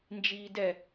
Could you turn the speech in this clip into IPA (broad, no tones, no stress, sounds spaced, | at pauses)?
n d͡ʒ iː d ɛ